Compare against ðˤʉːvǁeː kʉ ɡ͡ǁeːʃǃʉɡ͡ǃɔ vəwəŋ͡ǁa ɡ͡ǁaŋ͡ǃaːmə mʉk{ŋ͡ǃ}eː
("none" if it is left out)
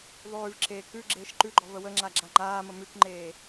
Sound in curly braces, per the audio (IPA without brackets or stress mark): ŋ͡ǃ